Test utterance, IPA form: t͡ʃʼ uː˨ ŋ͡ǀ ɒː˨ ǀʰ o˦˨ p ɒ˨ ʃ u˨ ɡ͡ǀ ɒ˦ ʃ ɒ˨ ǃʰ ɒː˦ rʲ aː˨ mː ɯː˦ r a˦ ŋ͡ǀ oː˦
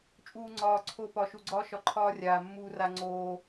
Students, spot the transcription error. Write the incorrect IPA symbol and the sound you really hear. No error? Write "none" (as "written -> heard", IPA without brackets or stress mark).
ɯː˦ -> uː˦